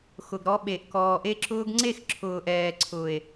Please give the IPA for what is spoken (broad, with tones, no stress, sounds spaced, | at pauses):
x ʊ˨ ɡ ɾ ɔ˧ ɓ e˨ ʔ k ɔː˨ ʔ e˦ ǁ ʊː˦ ɡ ŋ͡ǀ e˦˨ x ǁʰ ʊː˨ ʔ ɛː˨ ǀʰ ʊː˨ e̯